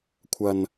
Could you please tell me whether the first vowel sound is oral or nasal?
oral